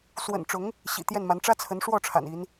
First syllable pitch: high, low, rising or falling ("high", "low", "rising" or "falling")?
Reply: low